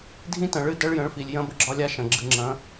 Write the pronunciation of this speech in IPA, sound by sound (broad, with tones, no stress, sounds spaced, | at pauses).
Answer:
dʱ ĩ˦˥ t ɐ̃˨ ɭ ɨ˦˥ d ɐ˦˥ ɭ j ə̃˨˥ ɭ f i˨ lʲ j ɐ̃˦˥ b ə˦˥ ɡ͡ǁ ɒ˦˥ lʲ a˦˥ ʃ ɐ̃˨ ɡ͡ǁ ɨ˨ ŋ͡ǁ ɐ̃˨˥